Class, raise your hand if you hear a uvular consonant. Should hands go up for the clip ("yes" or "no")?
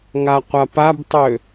yes